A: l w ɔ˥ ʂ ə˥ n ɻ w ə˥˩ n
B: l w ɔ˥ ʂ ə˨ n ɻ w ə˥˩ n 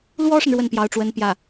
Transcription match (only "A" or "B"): B